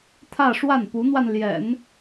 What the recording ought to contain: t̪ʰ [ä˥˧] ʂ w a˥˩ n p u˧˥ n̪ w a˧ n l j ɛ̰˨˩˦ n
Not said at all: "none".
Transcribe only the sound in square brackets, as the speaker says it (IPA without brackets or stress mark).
ä˥˧